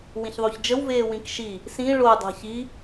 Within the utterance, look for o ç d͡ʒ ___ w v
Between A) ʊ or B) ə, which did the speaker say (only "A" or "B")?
B